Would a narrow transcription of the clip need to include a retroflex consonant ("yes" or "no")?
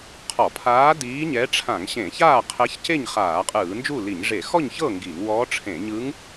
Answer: yes